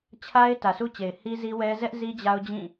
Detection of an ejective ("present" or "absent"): absent